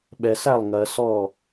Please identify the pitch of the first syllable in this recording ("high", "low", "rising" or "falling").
low